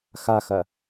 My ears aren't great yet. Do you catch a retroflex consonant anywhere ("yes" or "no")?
no